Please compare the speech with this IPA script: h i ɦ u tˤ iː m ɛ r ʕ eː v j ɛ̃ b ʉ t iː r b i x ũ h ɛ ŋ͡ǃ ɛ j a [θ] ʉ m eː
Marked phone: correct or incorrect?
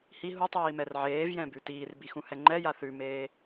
correct